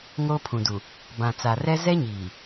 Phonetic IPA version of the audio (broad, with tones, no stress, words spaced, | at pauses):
ŋoː˦pʰũ˨du˨ | bã˨t͡sa˨rɛ˦ zɛ˦ɲiː˨